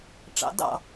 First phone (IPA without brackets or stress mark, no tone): ʈ͡ʂ